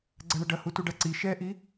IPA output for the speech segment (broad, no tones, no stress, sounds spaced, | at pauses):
ɡ͡ǀ ɐ ɳ ə ɖ ɐ h u t u ɖ a ǀ i ʃ ɛ ʔ i